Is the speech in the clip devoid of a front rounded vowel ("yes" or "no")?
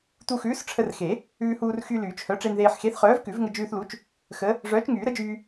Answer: no